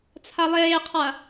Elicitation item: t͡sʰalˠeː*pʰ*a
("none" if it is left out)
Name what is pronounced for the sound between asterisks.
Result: qʰ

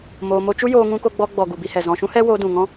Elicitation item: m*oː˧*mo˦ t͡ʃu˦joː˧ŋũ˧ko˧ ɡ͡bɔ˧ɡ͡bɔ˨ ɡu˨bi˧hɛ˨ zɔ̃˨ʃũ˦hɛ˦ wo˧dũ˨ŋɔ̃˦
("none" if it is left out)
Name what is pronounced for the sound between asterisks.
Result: oː˧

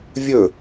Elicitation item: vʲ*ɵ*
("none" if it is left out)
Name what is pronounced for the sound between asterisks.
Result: ɵ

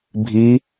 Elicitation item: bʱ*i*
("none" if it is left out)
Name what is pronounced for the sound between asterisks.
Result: i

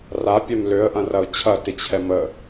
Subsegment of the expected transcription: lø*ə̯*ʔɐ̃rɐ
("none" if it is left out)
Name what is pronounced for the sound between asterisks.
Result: ə̯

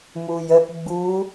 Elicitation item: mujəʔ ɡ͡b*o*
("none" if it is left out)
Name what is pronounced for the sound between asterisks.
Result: u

